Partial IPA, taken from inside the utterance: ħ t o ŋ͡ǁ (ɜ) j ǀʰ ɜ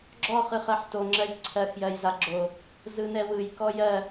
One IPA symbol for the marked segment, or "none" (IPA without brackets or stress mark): ɜ